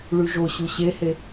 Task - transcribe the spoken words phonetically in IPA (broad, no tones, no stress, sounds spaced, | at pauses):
ɭ y ʒ o ɕ u ɕ e h e